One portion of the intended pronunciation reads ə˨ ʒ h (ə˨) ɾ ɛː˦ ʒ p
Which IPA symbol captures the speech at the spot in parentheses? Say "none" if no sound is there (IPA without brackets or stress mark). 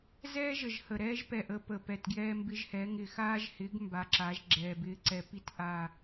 ə˨